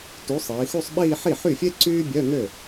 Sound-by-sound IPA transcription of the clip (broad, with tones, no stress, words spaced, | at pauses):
tu˨˥sˤiː˩˧xu˥˧sˤɓiː˥˧ ħi˥˩ħy˥˩fʲe˥ ǀyː˥bʲœ˧˥˧ŋø˥˩